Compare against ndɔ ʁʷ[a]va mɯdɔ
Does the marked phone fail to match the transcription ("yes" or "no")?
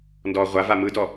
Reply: no